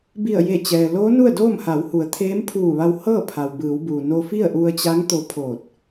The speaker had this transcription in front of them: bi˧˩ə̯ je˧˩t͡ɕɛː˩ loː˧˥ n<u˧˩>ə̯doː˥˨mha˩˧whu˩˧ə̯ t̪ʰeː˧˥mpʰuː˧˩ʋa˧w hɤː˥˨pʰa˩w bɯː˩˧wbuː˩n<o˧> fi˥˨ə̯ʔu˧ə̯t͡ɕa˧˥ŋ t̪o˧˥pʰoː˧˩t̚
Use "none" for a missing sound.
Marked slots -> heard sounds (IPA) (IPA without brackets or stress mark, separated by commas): u˥˨, o˧